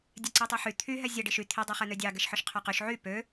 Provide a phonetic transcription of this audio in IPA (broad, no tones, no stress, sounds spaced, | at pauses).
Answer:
dʲ ɛ ǀ i tˤ ɛ ħ y t̪ʰ y ɦ ɛ zʲ ɛ ɖ i ʃ y t̪ʰ i dˤ ɛ χ ɛ n̪ ø dʲ ɑ ɡ ɛ ʃ ħ œ ʃ qʰ œ q y ʃ ʕ y p ø